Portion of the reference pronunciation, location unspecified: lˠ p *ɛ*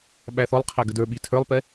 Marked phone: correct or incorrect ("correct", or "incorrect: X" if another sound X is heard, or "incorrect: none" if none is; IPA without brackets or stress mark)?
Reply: correct